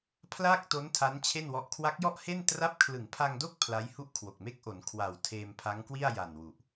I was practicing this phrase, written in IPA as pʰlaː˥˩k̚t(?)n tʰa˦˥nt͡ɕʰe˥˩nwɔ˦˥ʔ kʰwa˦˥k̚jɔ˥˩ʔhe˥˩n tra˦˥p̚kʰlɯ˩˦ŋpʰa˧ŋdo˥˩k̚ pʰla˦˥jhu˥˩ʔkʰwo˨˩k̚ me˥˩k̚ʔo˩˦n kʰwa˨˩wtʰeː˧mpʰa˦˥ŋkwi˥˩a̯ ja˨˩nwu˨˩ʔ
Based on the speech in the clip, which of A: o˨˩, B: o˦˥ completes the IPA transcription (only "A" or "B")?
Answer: B